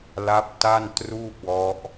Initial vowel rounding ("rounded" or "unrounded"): unrounded